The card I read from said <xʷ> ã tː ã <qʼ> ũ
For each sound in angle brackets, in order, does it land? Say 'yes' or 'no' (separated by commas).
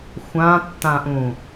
yes, no